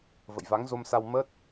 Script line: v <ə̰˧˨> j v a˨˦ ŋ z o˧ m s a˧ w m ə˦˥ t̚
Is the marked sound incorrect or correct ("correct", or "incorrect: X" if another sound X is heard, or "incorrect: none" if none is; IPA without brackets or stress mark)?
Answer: correct